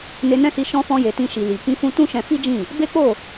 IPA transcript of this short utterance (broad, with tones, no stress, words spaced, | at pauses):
ne˧nɛ̃˦si˧ ʃɔ̃˧fɔ̃˧je˨ tĩ˧ʃi˨ li˨ kĩ˧fũ˧ tũ˦ʃɛ̃˧fi˦d͡ʒĩ˦˨ | be˦k͡po˦˨